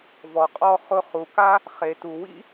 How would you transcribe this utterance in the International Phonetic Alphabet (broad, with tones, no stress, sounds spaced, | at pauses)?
v ɔ˨ qʼ ɔ˧ χ ʊ˦ χ u˨ k a˦ | χ e˨ t u˨ w ḭ˦